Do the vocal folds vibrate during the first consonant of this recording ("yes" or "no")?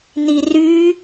yes